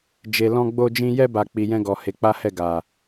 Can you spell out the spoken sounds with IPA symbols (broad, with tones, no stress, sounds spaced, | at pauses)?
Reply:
d͡ʒ e˨ l ɔ̃˧ ɡ͡b o˧ d͡ʒ ĩ˧ j ɛ˧ b a˨ k͡p i˨ j ɛ̃˧ ɡ ɔ˨ h e˨˦ k͡p a˦ h ɛ˦˨ ɡ a˨